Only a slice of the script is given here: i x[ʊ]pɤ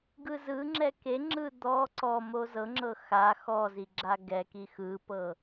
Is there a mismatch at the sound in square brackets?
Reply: yes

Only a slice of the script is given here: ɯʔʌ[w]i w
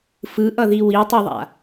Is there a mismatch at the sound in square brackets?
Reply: yes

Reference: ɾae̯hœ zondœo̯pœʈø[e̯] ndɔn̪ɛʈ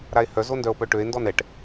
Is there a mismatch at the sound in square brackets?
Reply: no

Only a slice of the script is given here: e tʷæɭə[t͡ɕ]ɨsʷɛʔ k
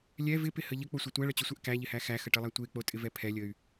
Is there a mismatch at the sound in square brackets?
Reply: no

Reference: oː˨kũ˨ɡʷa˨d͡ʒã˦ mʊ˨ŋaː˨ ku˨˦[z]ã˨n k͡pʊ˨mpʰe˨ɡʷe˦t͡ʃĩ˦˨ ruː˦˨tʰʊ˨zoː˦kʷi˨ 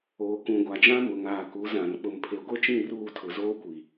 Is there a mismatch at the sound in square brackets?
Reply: no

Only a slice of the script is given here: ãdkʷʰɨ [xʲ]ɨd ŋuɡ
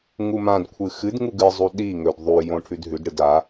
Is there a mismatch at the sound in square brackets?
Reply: yes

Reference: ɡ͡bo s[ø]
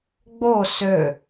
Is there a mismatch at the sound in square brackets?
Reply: no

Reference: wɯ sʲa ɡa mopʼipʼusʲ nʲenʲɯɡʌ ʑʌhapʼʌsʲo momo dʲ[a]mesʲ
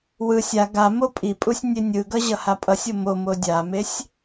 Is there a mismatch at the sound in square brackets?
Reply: no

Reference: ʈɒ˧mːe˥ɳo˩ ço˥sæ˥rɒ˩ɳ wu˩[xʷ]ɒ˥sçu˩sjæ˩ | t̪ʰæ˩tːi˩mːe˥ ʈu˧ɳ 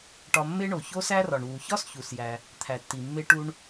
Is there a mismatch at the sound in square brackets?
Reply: yes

